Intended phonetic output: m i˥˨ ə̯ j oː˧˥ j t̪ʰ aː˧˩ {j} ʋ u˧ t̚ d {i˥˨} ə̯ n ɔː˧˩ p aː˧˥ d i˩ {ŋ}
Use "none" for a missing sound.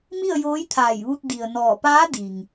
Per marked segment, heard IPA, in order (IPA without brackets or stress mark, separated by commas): j, i˩, ŋ